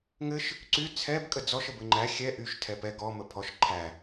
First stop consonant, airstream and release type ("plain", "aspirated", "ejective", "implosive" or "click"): click